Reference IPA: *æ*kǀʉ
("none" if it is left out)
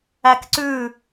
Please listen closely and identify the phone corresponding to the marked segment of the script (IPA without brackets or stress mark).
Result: æ